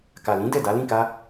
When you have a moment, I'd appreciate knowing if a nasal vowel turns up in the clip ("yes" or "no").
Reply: yes